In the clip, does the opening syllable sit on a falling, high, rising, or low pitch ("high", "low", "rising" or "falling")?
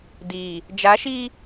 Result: low